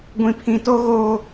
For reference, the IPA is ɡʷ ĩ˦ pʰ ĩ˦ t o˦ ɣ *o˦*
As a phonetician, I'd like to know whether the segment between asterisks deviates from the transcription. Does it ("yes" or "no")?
yes